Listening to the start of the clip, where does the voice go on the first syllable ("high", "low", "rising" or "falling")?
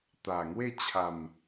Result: low